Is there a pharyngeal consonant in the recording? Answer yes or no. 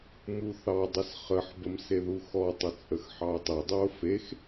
yes